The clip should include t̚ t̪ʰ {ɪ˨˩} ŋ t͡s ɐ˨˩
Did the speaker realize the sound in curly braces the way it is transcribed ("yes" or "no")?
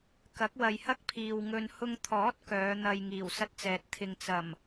no